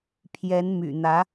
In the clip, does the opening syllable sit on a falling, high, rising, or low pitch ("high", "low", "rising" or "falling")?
rising